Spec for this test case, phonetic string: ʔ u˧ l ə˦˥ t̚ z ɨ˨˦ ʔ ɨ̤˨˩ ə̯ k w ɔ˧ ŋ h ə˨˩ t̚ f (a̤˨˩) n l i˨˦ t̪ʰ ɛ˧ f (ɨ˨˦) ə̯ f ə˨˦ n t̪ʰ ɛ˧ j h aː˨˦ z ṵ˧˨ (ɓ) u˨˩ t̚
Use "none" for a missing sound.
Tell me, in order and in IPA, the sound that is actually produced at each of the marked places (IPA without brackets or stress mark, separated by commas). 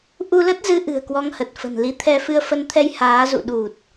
ə̤˨˩, ɨ˧, ɗ